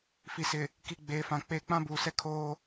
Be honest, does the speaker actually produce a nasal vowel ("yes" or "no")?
yes